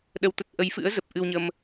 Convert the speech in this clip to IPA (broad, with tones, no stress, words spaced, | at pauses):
ɗə˧wt̪ə˦˥t̚ ʔə˨˦jfɨ̰˧˥ə̯zə˨˩p̚ ʔɨ˧wɲə˧m